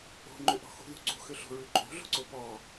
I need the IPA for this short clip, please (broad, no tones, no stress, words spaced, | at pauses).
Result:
o̤ ŋ͡ǃʏʔɔ̤xṳ ðṳǀṳxʏɬo̤ ɹʉǃʼo̤ɮo̤ǀo pɔ